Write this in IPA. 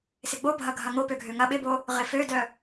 s ɪ ɡ͡b o bʱ ɐ ɡʱ ɐ ŋ o p ø ɡʱ ø ŋ ɐ ɓ ɪ b o | ʁ ɪ f ø d œ

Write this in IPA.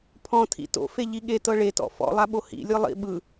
pʰ ɔ̃ tʰ ḭ t o̰ f e ʎ i ɠ e t ɤ ɭ e t ɔ̰ f ɔ̰ lˠ a ɓ o h ḭ lʲ ɯ lˠ ḭ ɓ ɯ

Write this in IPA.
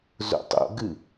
z o̰ tˤ o̰ ɡ ɨ

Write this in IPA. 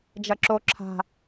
d͡ʒ ɐ ǁ o ǁʰ a̤

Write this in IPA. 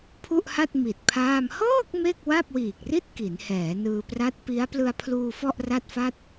pʰ u˥˩ ʔ h a˥˩ t̚ m i˨˩ t̚ pʰ aː˥˩ m h ɤː˥˩ k̚ m e˥˩ k̚ w a˥˩ p̚ w iː˨˩ k̚ r i˥˩ t̚ k i˩˦ n h ɛː˩˦ n ɯː˧ p r a˦˥ t̚ p i˦˥ a̯ p l ɯ˧ a̯ pʰ l uː˧ f ɔ˥˩ ʔ r a˥˩ t̚ f a˥˩ t̚

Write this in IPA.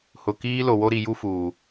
h ʊ˨ k iː˦ l o˨ w o˦ ɾ i˨ j u˦ f uː˨

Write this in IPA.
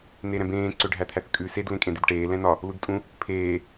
n e ɾ ɛ̃ b ẽː ǀ ø ɖʱ æ t̪ʰ æ θ kʼ ʉ s e d l ẽ kʼ ẽ d̪ e d ʈ eː l ɛ̃ n ɒ | l u d tʼ ũ | pʰ eː

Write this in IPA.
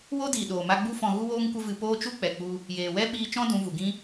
w o˦ d iː˨ ɗ oː˨ m a˧ ɡ͡b u˦ f ɔ̃˧ ɣ u˦ w oː˦ ŋ kʷ ə˦ v ɨ˧ p oː˦ t͡ʃ u˦ k͡p ɛ˨ k͡p u˧ | j eː˨ w ɛ˦ ɓ iː˦ t͡ʃ ɔ̃˦ d ũ˨˦ v u˨ ɡ ĩ˦

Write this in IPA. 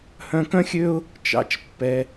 h œ̃˧ k œ̃˦ xʲ ø˦ ʊ̯ | t͡ʃ ɑ̰˧ t͡ʃ pː ɛ˧

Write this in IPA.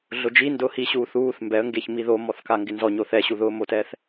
ɮ ʊ d͡ʒ i n d ʊː h i ɕ uː θ uː θ m b ɛ ə̯ ŋ ɡ e ç m i ð o m ɔ θ k a ŋ ɡ ɪ n z ɔ ɲ o θ ɛ ɕ u ð ʊː m o t ɛː θ

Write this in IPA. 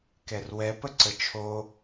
k ɛ r w ɛ p ə ǀ ə t͡ʃʰ o

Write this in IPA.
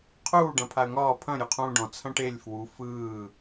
qʰ uː ɖ ɐ̃ pʰ a ə̯ ŋ ɒː pʰ ɐ̃ ɾʲ u qʰ ũː ɖ ɔ̃ t͡sʰ ɐ̃ ʈ e lʲ f w u f ɯː

